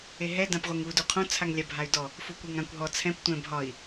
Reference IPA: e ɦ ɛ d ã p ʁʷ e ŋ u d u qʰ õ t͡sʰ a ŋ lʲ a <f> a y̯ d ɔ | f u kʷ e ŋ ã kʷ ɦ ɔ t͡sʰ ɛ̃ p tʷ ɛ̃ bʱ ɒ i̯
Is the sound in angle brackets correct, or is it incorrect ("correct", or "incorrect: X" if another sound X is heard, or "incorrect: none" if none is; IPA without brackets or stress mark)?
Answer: incorrect: bʱ